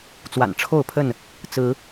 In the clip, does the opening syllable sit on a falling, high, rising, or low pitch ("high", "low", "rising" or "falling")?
low